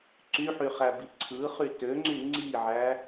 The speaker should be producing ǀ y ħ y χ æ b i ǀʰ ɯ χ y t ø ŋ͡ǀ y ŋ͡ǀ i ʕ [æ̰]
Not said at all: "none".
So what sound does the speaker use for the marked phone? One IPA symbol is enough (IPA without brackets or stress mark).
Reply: æ